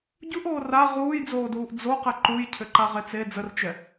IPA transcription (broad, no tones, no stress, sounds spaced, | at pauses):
ɟ u ʔ oː r a ʁ uː j d͡z oː d uː ʔ d͡z o q ɛ ǃ u j cʰ ʏ ǃ a ʁ e t͡s e d͡z ə r t͡ʃ ɛ